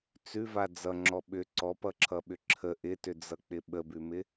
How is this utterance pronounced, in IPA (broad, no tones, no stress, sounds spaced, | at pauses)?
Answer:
t͡s ʉ v a d͡z ʌ ŋ͡ǁ ɔ ɓ ʏ ǀ ɔ p ʌ ǁʰ ʌ ɓ ʏ ǁʰ ə ʔ ɪ t ʏ d͡z ʌ k͡p ɪ ɓ ə b ʉ m ɪ